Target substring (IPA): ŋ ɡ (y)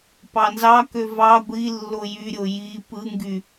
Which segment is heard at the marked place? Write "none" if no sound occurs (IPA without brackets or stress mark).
y